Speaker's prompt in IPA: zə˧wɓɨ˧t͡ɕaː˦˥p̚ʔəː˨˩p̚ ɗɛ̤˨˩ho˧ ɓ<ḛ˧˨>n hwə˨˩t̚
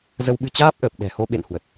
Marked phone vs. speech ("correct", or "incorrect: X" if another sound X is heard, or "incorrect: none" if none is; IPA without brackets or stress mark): correct